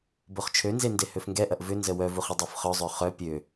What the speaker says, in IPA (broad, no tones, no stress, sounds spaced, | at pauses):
b o χ t͡ʃʰ ø n z e n d e h ø f ŋ ɡ ɛ ʔ ɐ ʔ v ʏ n z ə w œ v u χ ə dˤ o f χ œ zˤ ø χ œ pʲ ø